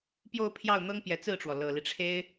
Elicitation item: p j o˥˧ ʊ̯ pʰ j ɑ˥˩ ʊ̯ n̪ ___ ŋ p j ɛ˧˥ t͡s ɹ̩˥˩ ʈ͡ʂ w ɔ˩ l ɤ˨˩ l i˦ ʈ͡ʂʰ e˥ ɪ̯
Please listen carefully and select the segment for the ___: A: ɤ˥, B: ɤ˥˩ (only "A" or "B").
A